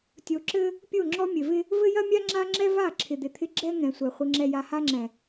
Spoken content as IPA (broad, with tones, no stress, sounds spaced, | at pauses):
tʲ o˨ ǁ ɘ˦ | pʲ o˦˨ ŋ͡ǁ ɔ˦ mʲ ɘ˨ v ɪ˦ | v ɘ˦ j ɐ˦ mʲ a˦ ŋ͡ǁ a˦ ŋ͡ǁ ɛ˦ v a˦˨ ǁʰ ɪ˨ d̪ ɪ˨ t̪ʰ ɪ˦ ɡ͡ǁ ɛ˦ ŋ ɛ̃˨ sʷ ɛ˨ χʷ ɪ˨ ŋ͡ǁ ɛ˨ j a˨ h a˦ ŋ͡ǁ ɛ̃˨